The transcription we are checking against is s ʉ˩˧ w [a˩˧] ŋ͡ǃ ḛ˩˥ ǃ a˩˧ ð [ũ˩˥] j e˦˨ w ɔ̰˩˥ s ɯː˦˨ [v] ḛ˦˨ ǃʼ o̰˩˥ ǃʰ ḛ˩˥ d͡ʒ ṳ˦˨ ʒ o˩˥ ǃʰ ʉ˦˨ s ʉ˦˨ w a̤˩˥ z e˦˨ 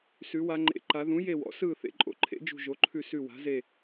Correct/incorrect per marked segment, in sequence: correct, correct, incorrect: θ

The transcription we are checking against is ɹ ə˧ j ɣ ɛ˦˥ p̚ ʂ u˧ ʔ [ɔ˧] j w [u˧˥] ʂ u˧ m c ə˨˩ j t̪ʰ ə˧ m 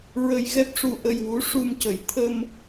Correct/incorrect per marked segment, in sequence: incorrect: ə˧, correct

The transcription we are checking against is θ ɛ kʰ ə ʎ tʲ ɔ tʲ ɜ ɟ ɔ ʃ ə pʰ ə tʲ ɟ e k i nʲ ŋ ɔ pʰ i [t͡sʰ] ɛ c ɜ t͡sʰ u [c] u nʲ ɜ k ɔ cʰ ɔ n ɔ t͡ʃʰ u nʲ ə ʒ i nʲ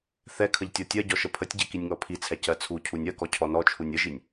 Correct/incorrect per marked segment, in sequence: correct, incorrect: cʰ

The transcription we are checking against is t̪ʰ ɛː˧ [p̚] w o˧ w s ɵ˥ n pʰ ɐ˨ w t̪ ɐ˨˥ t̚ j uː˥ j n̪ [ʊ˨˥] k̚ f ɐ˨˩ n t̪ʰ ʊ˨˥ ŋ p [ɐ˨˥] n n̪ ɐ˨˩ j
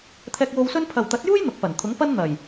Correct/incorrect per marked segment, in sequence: incorrect: k̚, correct, incorrect: ɐ˥

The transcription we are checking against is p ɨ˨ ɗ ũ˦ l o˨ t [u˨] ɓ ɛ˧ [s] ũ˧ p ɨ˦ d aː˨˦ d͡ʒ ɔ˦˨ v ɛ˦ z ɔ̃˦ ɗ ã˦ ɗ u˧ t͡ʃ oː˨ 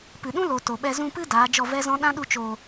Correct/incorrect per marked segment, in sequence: incorrect: o˨, incorrect: z

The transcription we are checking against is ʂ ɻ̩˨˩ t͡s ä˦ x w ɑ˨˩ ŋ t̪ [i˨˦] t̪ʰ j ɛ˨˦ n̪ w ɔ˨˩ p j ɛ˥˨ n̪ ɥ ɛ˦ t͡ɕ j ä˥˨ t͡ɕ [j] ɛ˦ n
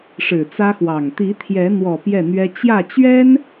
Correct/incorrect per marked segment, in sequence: correct, incorrect: ɥ

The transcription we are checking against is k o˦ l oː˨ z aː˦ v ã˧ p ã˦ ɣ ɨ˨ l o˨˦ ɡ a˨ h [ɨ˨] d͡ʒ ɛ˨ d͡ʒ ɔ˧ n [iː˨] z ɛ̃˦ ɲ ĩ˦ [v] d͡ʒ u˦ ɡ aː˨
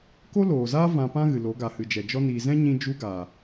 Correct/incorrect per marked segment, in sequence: correct, correct, incorrect: none

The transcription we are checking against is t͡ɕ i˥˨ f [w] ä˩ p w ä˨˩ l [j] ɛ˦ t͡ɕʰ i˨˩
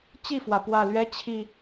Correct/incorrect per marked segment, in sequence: correct, incorrect: ɥ

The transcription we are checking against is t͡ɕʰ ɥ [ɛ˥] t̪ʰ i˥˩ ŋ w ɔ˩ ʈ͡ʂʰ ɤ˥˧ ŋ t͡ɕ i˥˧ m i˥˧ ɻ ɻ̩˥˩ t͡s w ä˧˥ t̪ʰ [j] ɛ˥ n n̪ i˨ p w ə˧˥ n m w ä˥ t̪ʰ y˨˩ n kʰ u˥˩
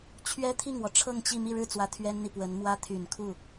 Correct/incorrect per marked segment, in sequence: correct, incorrect: ɥ

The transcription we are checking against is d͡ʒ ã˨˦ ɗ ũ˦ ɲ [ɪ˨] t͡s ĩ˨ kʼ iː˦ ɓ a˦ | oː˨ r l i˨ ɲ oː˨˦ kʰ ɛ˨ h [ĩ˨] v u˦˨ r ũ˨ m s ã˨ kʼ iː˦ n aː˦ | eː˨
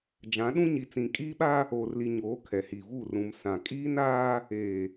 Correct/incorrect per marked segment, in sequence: incorrect: i˨, incorrect: i˨

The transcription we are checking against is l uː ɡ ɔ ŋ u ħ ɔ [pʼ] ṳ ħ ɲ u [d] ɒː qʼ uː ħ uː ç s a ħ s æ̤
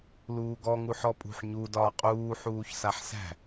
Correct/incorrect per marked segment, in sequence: correct, correct

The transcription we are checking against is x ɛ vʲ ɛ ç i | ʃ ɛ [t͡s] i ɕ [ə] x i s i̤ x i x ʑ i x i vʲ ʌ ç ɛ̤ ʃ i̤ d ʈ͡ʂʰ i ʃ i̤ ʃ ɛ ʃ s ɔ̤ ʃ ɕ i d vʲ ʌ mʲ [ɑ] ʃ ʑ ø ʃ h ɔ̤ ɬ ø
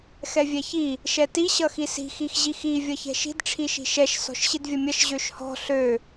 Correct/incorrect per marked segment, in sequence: incorrect: t, incorrect: ʌ, incorrect: ʌ

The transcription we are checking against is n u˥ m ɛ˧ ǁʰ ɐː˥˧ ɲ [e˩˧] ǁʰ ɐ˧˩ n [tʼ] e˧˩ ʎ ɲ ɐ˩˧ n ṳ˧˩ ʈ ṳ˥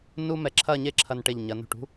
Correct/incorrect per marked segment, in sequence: incorrect: e˥, incorrect: ʈ

